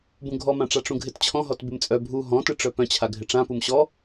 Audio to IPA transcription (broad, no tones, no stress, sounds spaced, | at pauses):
b ũ ɡʱ ɔ m ã ʈ͡ʂ a ʈ͡ʂ ũ ɡʱ ɪ t t͡ɕʰ ɔ̃ ɦ ɔ t b ɪ m t͡sʼ œ bʱ u ɦ ɔ̃ t ɨ ʈ͡ʂ œ p œ̃ t͡ɕʰ a ɡʱ ɪ ʈ͡ʂ ã p u m ɕ ɔ